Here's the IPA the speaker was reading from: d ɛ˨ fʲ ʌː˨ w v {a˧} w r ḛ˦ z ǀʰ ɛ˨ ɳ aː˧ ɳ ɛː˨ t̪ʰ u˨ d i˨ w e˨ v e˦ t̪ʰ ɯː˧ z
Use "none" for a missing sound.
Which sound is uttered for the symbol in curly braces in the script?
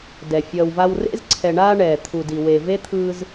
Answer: a˧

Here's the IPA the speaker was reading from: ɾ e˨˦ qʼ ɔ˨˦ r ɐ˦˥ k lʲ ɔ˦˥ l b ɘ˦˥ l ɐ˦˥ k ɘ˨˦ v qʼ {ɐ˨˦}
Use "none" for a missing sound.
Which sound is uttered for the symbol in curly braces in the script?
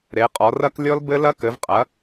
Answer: ɐ˨˦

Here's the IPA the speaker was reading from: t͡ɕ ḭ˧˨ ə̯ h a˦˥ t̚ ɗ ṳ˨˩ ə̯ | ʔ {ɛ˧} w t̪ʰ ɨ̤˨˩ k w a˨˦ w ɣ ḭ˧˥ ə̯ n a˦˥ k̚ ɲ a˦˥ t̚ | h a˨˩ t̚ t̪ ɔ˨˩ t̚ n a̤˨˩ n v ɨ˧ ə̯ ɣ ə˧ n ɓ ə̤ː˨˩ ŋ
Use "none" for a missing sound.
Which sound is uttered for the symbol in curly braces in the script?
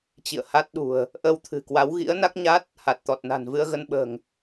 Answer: ə˧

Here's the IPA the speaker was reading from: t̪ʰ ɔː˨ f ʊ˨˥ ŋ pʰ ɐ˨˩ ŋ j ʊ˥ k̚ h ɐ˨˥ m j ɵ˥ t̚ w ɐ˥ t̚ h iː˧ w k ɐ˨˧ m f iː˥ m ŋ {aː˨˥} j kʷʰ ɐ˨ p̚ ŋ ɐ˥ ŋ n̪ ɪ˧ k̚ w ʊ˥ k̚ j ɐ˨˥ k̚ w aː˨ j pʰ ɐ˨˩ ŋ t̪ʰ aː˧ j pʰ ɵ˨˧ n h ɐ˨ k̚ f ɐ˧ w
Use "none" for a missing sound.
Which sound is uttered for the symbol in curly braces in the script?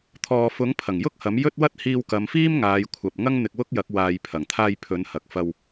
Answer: aː˨˧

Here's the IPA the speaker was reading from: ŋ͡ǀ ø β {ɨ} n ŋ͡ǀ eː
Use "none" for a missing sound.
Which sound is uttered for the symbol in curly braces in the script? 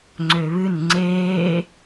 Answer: ɨ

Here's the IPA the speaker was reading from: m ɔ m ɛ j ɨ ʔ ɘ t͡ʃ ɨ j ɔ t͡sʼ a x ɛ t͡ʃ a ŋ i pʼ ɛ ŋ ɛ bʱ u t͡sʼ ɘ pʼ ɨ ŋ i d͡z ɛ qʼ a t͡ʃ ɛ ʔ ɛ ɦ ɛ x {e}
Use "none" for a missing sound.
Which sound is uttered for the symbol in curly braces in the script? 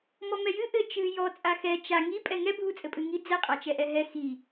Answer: i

